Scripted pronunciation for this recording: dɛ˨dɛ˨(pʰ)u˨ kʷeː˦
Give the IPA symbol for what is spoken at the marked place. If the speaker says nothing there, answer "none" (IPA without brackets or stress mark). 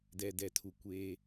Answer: tʰ